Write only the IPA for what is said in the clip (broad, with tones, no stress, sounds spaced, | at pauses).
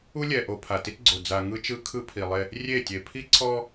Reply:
u˦ lʲ ɛ˨ ʔ o˨ pʰ a˨ t i˦ t ɡ͡ǀ o˨ d͡z a˨ ŋ ɯ˦ t͡ʃ ɯ˦ kʰ ɯ˦ pʰ i˨ lˠ e˦ | rʲ e˦˨ tʲ e˨ pʰ i˦ ǀʰ ɔ˦